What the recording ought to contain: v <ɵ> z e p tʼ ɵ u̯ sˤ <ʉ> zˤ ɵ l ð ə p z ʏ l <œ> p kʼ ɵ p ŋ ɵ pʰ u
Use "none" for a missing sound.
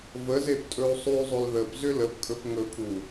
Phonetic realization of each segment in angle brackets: ə, ʉ, ə

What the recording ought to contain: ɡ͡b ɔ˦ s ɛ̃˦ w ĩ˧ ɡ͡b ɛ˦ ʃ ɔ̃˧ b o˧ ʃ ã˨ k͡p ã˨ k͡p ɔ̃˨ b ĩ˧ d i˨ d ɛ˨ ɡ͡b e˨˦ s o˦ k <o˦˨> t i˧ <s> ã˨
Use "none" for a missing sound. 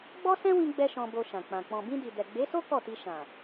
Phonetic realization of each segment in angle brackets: ɔ˦˨, ʃ

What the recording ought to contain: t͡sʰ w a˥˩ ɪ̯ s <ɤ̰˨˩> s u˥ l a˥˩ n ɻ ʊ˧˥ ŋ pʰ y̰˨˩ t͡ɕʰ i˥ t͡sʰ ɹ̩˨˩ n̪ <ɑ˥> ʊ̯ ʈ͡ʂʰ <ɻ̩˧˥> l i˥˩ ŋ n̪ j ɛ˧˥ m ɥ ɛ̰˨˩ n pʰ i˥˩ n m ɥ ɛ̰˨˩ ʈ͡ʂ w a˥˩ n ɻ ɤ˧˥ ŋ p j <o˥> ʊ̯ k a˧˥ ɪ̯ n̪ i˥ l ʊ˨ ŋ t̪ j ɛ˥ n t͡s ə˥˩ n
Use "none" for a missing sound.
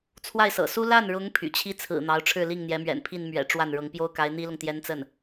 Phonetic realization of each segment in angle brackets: ɤ̰˨˩, ɑ˧˥, ɻ̩˥˧, o˥

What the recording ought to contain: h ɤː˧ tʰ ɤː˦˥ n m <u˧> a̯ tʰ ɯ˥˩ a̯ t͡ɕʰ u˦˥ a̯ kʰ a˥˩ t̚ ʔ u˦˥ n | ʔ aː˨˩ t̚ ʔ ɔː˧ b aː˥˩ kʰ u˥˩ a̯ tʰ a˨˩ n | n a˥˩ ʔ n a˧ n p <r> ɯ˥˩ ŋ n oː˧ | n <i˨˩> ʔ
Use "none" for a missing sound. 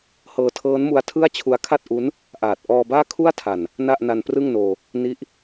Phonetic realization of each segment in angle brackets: u˧, r, i˦˥

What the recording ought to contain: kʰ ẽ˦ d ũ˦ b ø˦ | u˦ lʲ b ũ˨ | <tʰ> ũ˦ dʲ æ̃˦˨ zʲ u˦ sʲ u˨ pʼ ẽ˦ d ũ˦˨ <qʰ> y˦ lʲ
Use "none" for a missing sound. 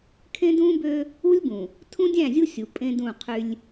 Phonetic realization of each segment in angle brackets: tʰ, qʰ

